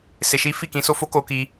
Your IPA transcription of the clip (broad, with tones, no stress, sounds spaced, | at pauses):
s e˧ ʃ i˦ f i˦˨ k ĩ˧ s o˧ f o˦ k o˧ k i˧